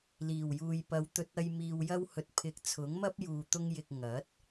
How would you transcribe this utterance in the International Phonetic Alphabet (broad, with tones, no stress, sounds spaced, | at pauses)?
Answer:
l iː˨˩ w j uː˨ j p ɐ˨˧ w t̪ ɵ˧ t̚ ɐ˧ j m iː˨ w j ɐ˧ w h ɵ˨ t̚ pʰ ɪ˨˥ k̚ t͡sʰ ʊ˨˥ ŋ m ɐ˥ p̚ j uː˧ t̪ ʊ˥ ŋ j ɪ˧ k̚ ŋ ɐ˨˥ t̚